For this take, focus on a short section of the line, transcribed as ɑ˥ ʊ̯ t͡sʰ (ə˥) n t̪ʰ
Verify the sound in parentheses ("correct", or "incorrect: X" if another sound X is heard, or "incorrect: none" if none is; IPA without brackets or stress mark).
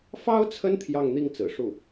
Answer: correct